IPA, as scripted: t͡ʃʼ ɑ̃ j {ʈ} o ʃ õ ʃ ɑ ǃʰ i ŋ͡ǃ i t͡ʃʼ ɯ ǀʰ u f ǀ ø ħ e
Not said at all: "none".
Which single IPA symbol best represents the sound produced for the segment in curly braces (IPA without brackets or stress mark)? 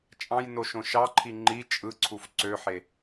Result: n